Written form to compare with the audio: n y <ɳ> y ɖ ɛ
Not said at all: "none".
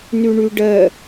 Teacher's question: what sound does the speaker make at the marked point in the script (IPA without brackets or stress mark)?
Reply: ɳ